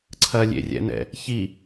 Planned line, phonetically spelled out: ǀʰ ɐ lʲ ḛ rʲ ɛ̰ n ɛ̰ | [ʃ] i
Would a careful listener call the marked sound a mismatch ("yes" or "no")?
yes